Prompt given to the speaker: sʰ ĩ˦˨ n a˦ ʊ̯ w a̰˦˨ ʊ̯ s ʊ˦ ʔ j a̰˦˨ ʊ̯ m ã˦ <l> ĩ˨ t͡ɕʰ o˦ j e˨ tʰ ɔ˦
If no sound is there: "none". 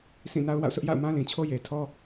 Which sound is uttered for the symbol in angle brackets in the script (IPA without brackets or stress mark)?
l